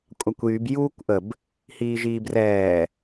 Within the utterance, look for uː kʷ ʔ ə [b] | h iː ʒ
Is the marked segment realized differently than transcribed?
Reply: no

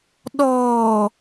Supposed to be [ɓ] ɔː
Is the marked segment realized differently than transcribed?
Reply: yes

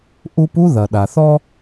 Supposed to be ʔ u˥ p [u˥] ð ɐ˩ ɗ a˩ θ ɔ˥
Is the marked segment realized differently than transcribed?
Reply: no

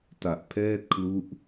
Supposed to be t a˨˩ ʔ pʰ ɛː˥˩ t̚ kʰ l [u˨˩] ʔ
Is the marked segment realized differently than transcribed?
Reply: yes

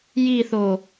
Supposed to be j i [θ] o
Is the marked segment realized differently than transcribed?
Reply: no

